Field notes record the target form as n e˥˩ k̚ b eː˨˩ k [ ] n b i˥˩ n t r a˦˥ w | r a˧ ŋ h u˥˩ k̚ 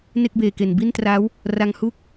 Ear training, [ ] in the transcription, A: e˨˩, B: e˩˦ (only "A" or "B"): A